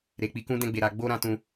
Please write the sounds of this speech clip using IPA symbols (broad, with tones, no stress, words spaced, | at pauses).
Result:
ɾe˨k͡pi˨˦kũ˦ dɛ̃˧ɡ͡be˨ɾa˨ ɡ͡bo˧ɾã˧ tũ˧